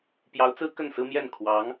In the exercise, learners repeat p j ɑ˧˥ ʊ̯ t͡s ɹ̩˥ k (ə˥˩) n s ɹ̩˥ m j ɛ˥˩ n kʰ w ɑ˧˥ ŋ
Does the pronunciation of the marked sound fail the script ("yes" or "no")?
no